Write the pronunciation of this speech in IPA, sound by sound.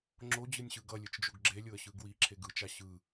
ŋ͡ǁ o d͡ʑ ɯ nʲ ɕ ɯ ɡ ʌ lʲ ɯ t͡ʃ d͡ʒ o ɡ ɡ͡ǁ e lʲ o ə̯ ɕ ɯ ɡ w i ǁʰ e ɡ ɯ t͡ʃ a ɕ ɯ

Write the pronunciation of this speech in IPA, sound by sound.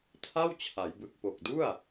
tʰ a˥˩ w t͡ɕʰ a˩˦ j b ɯ˨˩ k̚ p o˨˩ k̚ d u˥˩ a̯

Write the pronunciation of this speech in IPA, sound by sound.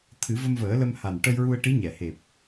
t̪ʰ ɨ˨˩˦ v ə˧ m v əː˨˩˦ l ə˧ m h a˨˩ n ʈ ə˧ j ɹ u˧ ə̯ ʈ i˧˥ ɲ ɛ˨˩˨ h e˨˩ p̚

